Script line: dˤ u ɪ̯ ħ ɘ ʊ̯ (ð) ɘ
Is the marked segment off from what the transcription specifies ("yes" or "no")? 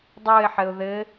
no